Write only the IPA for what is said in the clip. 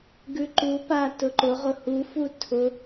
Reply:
ɡ ʉ ǃ u p a t ʊ ǃ ʊ ʁ ʊ h u f u tʰ ʊ

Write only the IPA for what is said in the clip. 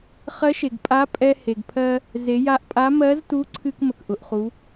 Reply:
χ ɜ˧˥ ʃ e˩ ɡ pʼ a˧˥ pʼ ɛ˧ h e˩ ɡ pʰ ɜ˧ | z e˩˧ j a˧ ʔ pʼ a˧˥ m ɜ˧˥ z t u˧˥ ǀʰ ɨ˧ k m ə˩ k ʔ ʊ˩ ʔ χ u˩˧

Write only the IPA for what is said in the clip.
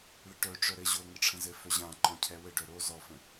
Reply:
ɭ ə ʈ œ ʈ͡ʂ œ ɾ ɘ ʑ o ŋ ɘ ʈ͡ʂʰ ə̃ z ɘ f œ ʑ ã ǃ ɔ̃ cʰ ɛ w ɘ ɖ œ ɾ o z ɔ f ə̃

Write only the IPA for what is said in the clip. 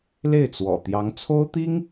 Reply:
l e˥˩ ɪ̯ t͡s w ɔ̰˨˩ t̪ j ɑ˧˥ ŋ t͡sʰ o˥ ʊ̯ t̪ i˥ ŋ

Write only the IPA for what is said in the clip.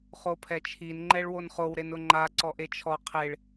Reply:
χ o pʰ ɛ t͡ʃʰ i n ŋ͡ǃ ɛ ɭ w o n χ o w ɾ e n ʊ ŋ͡ǃ a ǀ ɔ ʔ e t͡ʃʰ ɔ qʰ e ɭ

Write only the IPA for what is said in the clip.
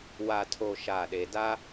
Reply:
w a˨ tʰ o˨ ʃ a˦˨ ɗ e˨ d a˦

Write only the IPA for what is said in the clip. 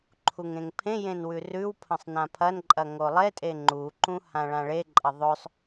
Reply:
ǃʰ u ŋ ẽ ŋ pʰ ẽ j ẽ n w ʉ r ʉ w pʰ ɐ̃ sˤ n ã pʰ ɐ n ǃʼ ɐ ŋ o lˠ e tʼ e ŋ͡ǃ u ǃ ũ h ã ɭ ã ɭ e ǃʼ ɐ ðˤ ɵ sˤ

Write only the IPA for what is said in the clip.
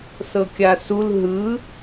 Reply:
s ɤ kʲ a s u l ɦ ɯ

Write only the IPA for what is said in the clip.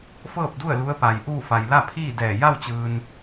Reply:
f ɤː˥˨ p̚ d u˥˨ ə̯ l u˧˥ ə̯ p a˩ j ʔ uː˥˨ f a˩ j l a˥˨ pʰ iː˥˨ d ɛː˧˩ j a˥˨ w t͡ɕ ɯː˩ n

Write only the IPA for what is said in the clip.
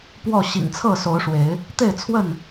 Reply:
p w ɔ˥˨ ɕ ḭ˨˩ ŋ t͡sʰ ɤ˥˨ s o˨˦ ʊ̯ ʂ w e˨˦ ɪ̯ | t̪ e˥˨ ɪ̯ t͡sʰ w ə˥˨ n

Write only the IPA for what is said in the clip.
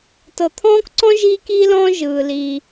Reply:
t ɤ˧ t̪ʰ ɔ̃ː˥ k ǀ ɔ̃˥ ʒ iː˥ k iː˥ l ɔ̃ː˥ ʒ ɯː˧ l iː˧

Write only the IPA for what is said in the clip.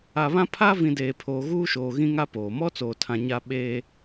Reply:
a˨ β ã˦ pʰ a˦ v ĩ˨ d eː˨ pʰ oː˨ ɣ uː˦ ʃ oː˨ ɣ ĩ˦ ŋ a˦ p oː˨ m ɔ˦ t͡s oː˨ tʰ ã˨ ɲ a˦ ɓ eː˦

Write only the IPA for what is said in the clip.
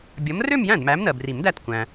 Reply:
bʲ ʌ˨˥ m r ø˥˧ m j æ̃˥˩ d m æ˨˥ m n ɜ˩ b r i˨˩˦ m d æ˥˩ t kʷ æ̃˩

